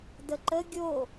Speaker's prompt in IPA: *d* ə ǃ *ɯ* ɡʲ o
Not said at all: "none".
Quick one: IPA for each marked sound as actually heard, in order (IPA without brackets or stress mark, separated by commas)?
d, ə